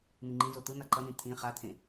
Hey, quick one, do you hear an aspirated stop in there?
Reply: yes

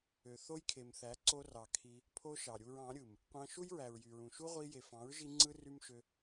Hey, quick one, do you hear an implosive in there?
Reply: no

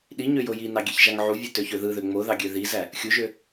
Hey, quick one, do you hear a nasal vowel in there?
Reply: no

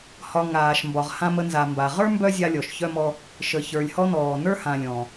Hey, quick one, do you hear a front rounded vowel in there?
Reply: yes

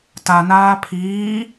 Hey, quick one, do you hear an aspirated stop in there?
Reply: yes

